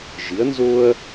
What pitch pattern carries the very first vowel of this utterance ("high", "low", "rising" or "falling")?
rising